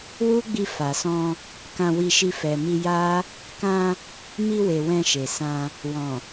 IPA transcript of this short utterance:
w u˦ ɡ͡b i˧ f a˨ s ɔ̃˧ | k ã˧ w i˧ ʃ i˧ f ɛ˨ m i˧ j a˦ | k ã˧ | m i˧ w e˨ w ɛ̃˧ ʃ e˨ s ã˧ | w ɔ̃˨

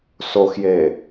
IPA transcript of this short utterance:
s o x j e

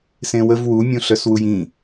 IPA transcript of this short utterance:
s ẽ w ə v w u mʲ ũ ɬ œ s w u j ĩ

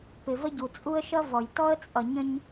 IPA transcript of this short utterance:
p ɪ˨ v ə˦ ɟ u˨ t͡sʼ u˦ ə̯ ʃ ʌ˦ v ɔ˨ j t ɔ˦ ə̯ t͡sʼ ʌ˨ ɲ ə̃˦ ɲ

